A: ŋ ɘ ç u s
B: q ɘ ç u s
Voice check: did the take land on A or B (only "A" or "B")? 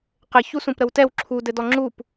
B